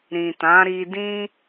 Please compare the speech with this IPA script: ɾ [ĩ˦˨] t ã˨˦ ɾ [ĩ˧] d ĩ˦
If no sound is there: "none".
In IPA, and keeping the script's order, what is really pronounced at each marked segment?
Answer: ĩ˨, i˧

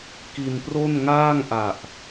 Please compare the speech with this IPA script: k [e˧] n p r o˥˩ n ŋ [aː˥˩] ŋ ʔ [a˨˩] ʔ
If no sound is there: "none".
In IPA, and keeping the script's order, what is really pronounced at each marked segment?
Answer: i˧, aː˥˩, a˨˩

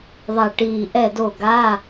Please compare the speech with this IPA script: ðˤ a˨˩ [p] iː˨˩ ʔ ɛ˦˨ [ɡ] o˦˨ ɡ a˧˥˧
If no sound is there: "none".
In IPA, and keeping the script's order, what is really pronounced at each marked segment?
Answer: ʈ, d

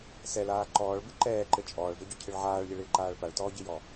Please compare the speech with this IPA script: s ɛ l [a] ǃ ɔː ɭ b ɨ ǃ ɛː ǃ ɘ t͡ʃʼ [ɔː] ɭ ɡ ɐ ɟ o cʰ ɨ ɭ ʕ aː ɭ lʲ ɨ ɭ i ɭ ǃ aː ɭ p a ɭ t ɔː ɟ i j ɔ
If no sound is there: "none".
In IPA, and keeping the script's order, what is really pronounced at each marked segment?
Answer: aː, ɔː

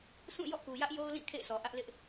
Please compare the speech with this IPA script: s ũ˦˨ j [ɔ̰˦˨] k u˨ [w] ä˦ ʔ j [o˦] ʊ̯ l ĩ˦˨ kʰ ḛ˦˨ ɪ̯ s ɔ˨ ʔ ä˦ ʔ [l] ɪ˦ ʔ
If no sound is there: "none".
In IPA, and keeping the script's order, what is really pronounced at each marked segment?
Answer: ɔ̰˦˨, j, o˦, l

